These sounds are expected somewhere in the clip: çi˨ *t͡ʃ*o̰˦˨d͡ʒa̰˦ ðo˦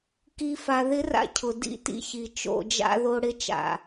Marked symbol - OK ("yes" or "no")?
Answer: yes